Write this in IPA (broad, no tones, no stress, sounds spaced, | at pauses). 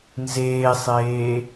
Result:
n z eː sˤ eː